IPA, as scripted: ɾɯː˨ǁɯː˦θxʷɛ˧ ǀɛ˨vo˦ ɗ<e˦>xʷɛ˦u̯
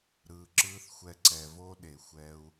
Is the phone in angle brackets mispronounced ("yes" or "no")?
yes